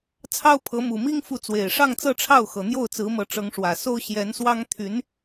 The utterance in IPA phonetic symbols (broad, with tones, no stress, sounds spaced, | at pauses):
t͡sʰ ɑ˥ ʊ̯ pʰ ɤ˧˥ m u˨˩ m i˥ ŋ f u˥˩ t͡s w e˨˩ ɪ̯ ʂ ɑ˥˧ ŋ t͡s ɤ˥˧ ʈ͡ʂʰ ɑ˥˩ ʊ̯ x ɤ˨˩ n̪ j o˥˩ ʊ̯ t͡s ɹ̩˧˥ m ɤ˧˥ ʈ͡ʂ ɤ˧˥ ŋ ʂ w ä˨˩ s o˥ ʊ̯ ɕ j ɛ˧˥ n s w ɑ˥ ŋ t̪ʰ y˧˥ n